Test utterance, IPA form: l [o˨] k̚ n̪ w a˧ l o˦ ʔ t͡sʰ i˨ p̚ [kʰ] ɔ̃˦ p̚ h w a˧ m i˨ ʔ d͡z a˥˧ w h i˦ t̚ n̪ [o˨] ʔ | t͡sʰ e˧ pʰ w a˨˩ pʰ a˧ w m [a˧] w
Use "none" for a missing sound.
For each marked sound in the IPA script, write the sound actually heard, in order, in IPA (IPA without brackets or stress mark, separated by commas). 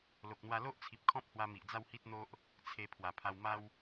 o˨, kʰ, o˦, a˦